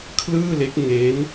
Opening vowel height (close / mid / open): close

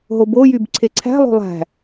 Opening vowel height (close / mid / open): mid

